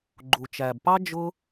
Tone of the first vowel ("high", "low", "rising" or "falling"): low